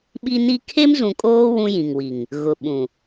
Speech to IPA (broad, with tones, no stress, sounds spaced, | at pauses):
ɓ i˦ n i˦ kʰ e˦ m z ũ˨ kʼ oː˦ w ũ˦ j ĩ˨ ŋ w i˨ ŋ | ɣ ʊ˨ ɓ ũ˨